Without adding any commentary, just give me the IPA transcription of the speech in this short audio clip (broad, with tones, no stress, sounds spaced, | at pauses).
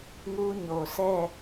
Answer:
ŋ u˦ ɲ o˨ sʰ ɛ˦˨